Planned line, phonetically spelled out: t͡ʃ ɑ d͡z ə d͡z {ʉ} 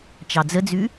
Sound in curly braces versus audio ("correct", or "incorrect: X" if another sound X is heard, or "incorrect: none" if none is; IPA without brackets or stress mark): correct